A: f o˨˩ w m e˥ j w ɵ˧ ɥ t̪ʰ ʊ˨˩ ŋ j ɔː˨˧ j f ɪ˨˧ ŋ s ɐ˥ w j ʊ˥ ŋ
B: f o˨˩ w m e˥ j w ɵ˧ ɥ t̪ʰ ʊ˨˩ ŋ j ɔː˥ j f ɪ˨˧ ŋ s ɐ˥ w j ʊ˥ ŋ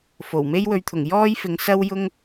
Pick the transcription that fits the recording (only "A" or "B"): B